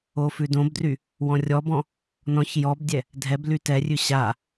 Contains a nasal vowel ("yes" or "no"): yes